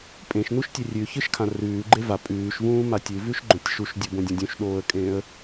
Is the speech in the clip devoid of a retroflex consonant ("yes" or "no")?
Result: yes